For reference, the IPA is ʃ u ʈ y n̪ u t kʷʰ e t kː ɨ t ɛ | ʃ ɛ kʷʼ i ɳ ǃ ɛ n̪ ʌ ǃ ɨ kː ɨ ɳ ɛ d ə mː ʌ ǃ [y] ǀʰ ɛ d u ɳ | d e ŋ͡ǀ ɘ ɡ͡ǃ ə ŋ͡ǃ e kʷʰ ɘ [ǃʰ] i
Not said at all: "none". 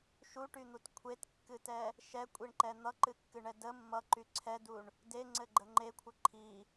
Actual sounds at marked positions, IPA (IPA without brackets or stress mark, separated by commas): y, ǃʰ